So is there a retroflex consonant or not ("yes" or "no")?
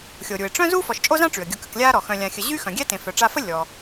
yes